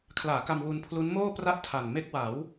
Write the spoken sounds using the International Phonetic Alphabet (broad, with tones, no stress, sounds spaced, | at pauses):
kʰ l aː˩˦ k a˧ m w u˧ n pʰ l u˦˥ n m oː˥˩ p r a˥˩ ʔ tʰ a˨˩ n m e˦˥ k̚ w a˩˦ w